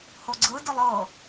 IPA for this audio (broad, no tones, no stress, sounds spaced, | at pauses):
h o ɡ͡ǀ ɯ d ɯ lˠ ɤ